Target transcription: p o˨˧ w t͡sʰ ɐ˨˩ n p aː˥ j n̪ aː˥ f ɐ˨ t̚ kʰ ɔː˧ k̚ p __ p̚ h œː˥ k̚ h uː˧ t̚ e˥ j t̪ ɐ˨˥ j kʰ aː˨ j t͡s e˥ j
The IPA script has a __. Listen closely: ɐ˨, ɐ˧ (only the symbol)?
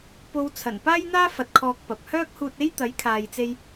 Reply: ɐ˨